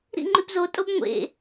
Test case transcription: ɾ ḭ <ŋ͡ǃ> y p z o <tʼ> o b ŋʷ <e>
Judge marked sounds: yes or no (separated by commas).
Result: yes, yes, no